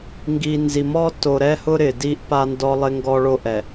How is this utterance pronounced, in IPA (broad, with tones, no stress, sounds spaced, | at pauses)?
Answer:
ŋ ɡ i˨ n z i˨ m ɔ˦ t o˨ ɾ ɛ˦ h ʊ˦ ɾ ɪ˨ d i˦ ʔ p a˦ n d ɔ˦ lˠ ɪ˦ ŋ ɡ ɔ˦ ɭ o˦ ʔ ɛ˨